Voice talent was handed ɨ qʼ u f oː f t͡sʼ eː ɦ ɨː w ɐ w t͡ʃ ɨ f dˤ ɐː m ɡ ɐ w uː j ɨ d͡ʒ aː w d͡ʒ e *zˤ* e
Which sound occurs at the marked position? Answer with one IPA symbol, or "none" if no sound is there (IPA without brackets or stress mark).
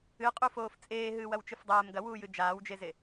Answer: z